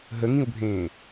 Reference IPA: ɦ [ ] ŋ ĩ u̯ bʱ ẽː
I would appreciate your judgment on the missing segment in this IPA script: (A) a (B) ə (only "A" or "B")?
B